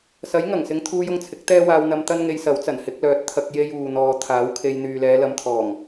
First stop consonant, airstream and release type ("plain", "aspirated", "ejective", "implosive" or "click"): aspirated